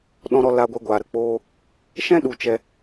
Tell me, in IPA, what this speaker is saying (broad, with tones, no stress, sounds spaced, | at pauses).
ɗ ɔ̃˧ ɾ ɔ˧ l a˧ ɡʷ ɛ˧ ɡʷ aː˨ ɾ ə˨ k͡p oː˧ | ʃ ɛ̃˦ ɗ u˨ t͡ʃ ɛ˧